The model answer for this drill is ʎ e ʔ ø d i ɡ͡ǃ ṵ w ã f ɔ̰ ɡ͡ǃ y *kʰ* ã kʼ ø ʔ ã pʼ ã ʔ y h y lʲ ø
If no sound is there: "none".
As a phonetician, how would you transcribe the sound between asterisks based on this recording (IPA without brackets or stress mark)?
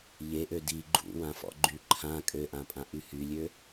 ǃʰ